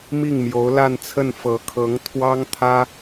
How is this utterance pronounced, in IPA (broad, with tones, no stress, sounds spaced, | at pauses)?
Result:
m i˥˩ ŋ m j o˧˥ ʊ̯ l a˥˧ n t͡sʰ ə˥˩ n f ɤ˧˥ kʰ ɤ˧˥ ŋ t̪ʰ w ɑ˥ ŋ t̪ʰ ä˥